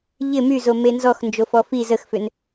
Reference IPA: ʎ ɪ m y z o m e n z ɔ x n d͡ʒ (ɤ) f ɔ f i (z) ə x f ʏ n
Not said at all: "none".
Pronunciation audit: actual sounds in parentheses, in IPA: o, z

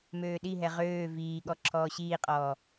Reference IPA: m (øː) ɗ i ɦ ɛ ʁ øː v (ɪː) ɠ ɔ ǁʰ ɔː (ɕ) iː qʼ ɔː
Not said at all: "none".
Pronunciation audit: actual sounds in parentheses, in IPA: øː, iː, ɕ

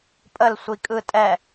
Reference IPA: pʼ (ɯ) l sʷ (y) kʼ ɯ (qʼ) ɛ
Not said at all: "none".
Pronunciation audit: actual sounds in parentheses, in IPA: ə, i, tʼ

